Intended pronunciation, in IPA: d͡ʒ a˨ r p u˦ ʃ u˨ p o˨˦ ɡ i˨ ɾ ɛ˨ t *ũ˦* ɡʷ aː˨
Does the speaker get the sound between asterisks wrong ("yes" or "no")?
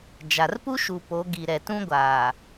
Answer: no